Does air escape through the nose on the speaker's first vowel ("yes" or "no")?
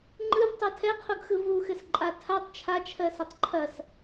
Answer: no